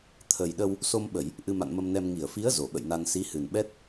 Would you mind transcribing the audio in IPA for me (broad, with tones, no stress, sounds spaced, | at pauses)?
t̪ʰ ə˨˩ j ɗ ə˧ w | s o˧ m ɓ ə˧˩˨ j | ʔ ɨ˧ m a̰˧˨ n m ə˧ m n ɛ˧ m ŋ i˧˩ ə̯ f i˨˦ ə̯ z o˨˩ ɓ ə̰˧˨ j n a˧ n s i˨˦ h ɨ˨˩ n ɓ ɛ˦˥ t̚